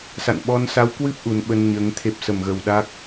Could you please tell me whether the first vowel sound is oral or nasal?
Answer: oral